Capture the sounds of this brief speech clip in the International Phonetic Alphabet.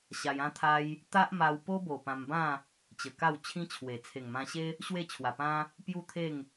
ɕa˧jã˦t̪ʰa˦j | t̪a˦ʔma˧w po˦bo˨˩ pã˧mbã˥˧ | t͡ɕə˨˩ka˥˧w t͡ɕʰĩ˦t͡ɕʰwe˨˩ t͡sʰe˨˩ŋmã˧ɕe˦ | ɕwe˥˧ t͡ɕʰwa˨˩pã˦ | pju˥˧t̪ʰe˥˧ŋ

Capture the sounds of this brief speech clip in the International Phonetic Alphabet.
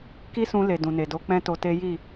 ki˦sũ˧le˨ dũ˨ne˨do˧ k͡pɛ̃˦to˧te˦ ji˦˨

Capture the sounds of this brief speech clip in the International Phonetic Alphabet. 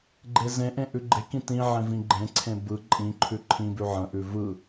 ɡ͡ǃezẽʔẽ ʔʉɡ͡ǃekĩ tĩ ʕẽvĩɡ͡ǃẽǀʰẽ bɯ ǃʼĩǃʰʉ ǃʰĩ bʉʕə̃ʔʉ vɯ

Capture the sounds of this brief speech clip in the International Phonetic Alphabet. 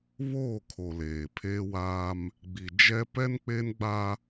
βoː˦˨kʰo˨ leː˨ pʰeː˦waː˦m | ɡ͡bi˨ d͡ʒɛ˦ pɛ˦nk͡pe˦nɡ͡ba˦

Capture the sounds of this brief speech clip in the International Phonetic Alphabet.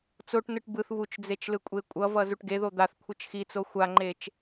t͡soʈnɯʈ bɯθ βut͡ʃd͡zet͡ʃlɯkʷʼe kʷʼʌvʌzuʈ ɡeðo d̪aθkʷʰɯt͡ʃ xit͡so xʷaŋ͡ǃet͡ʃ

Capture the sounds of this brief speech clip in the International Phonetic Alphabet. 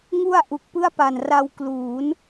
ŋu˧a̯ ʔu˨˩k̚pɯ˥˩a̯pa˨˩n ra˧wkluː˩˦n

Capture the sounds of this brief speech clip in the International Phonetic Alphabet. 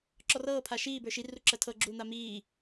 ǁɔrɤː pʰaʃiː bə˞ʃi ruǁɜtʰɤ ɡ͡ǁuːn̪amiː

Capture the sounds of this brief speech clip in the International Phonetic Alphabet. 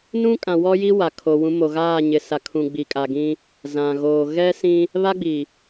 nũ˦kʼã˨wɔ˦ji˦ wa˨kʰo˨ wũ˨˦mo˨ɣaː˦˨ ɲɪ˨sa˨kʰũ˨ ɡ͡bi˨kʼa˨ɡĩ˦ | zã˨ɣoː˨ ɣɛ˦sĩ˦ | βa˦ɡ͡bi˨

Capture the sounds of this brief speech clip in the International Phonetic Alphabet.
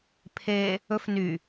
pʰe | ɵf ny

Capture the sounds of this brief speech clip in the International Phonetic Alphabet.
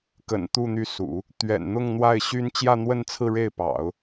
kə̰˨˩nt̪u˥˧ n̪y˥˩sṵ˨˩˦ | t̪ɥɛ̰˨˩nn̪ʊ˥˧ŋn̪wa˥˩ɪ̯ ɕy˥n t͡ɕjä˥˧n̪wə˥˧nt͡sʰɹ̩˥˧ ɻe˥˩ɪ̯pɑ̰˨˩˦ʊ̯

